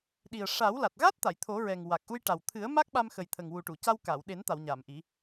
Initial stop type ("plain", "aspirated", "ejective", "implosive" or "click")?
implosive